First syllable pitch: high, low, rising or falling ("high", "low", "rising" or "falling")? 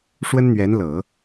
high